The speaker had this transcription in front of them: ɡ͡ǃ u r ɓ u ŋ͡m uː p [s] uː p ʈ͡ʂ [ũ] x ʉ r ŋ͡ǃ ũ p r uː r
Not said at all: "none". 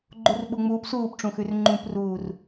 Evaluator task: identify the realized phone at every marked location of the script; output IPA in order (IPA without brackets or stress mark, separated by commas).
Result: s, ũ